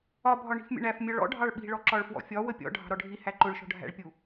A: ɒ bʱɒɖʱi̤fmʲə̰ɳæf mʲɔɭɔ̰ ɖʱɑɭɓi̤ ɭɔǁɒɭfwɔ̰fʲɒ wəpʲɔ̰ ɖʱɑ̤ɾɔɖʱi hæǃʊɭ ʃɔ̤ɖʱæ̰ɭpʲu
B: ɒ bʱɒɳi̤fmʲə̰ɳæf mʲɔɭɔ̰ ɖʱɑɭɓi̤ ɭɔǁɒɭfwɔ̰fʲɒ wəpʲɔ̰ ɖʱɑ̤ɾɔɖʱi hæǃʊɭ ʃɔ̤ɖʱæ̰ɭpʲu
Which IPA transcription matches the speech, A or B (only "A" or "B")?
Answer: B